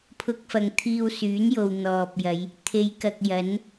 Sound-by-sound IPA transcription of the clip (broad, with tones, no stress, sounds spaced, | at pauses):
pʰ ʊ˧ k̚ f ɐ˨ ŋ t̪ʰ iː˧ w s yː˨˥ n j o˨ w n̪ ɔː˨ p̚ j ɐ˨˧ j | t̪ʰ e˨˧ j k ɐ˨ k̚ j ɐ˨˥ n